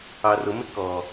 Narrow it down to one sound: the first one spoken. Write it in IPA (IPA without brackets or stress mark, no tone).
ɑ